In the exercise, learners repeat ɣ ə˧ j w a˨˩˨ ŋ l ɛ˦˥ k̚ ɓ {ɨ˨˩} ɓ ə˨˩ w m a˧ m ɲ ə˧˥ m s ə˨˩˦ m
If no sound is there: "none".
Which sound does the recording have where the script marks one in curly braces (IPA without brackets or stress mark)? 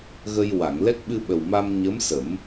ɨ˧